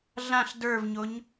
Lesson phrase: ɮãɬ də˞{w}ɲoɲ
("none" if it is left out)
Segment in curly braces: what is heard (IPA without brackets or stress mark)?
v